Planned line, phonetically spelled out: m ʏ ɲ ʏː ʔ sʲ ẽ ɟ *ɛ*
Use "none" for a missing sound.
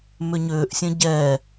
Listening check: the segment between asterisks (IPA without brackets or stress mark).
ɛ